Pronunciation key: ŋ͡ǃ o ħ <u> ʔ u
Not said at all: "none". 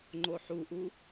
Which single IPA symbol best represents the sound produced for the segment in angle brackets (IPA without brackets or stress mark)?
u